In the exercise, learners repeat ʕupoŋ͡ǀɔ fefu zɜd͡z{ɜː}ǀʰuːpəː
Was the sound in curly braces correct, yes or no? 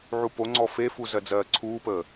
yes